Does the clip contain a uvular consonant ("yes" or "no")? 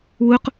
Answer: yes